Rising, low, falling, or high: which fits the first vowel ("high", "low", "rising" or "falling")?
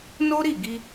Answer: high